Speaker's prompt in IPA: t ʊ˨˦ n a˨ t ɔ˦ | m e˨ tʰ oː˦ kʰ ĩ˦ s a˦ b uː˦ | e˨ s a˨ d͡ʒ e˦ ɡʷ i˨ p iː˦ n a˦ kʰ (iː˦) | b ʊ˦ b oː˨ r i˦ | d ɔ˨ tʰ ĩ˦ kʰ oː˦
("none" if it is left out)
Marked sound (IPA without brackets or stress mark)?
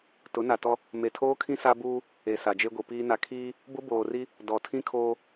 iː˦